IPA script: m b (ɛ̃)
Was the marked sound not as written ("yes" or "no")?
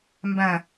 yes